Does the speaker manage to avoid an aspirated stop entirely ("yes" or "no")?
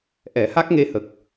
yes